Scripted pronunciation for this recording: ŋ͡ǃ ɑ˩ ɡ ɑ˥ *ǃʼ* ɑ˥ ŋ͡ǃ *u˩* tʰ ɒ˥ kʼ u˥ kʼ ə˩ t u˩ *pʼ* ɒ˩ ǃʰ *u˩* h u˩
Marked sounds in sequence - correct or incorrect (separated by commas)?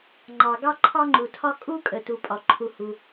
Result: incorrect, correct, correct, correct